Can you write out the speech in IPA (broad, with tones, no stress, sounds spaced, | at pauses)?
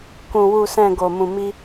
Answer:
k ũ˧ w u˧ s ɛ̃˧ ɡ o˧ m ũ˧ m i˦